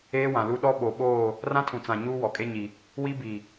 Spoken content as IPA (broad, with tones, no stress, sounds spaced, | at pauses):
eː˦ w ã˨ l u˦ ɗ ɔ˦ ɓ o˨ ɓ oː˦˨ | r ã˦ tʰ ũ˨ t͡s ã˨ ɲ uː˦ w ɔ˨ kʼ e˦ ɲ i˨ | w i˦ b i˨